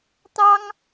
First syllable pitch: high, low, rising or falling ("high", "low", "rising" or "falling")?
high